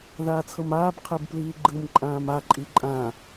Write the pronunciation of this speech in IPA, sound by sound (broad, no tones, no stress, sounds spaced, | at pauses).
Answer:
ð aː t͡sʰ ɤ m aː b qʰ e b p l iː ɡ͡ǃ ɯ m ǃʼ ãː m a ǃʼ i ǃʼ ã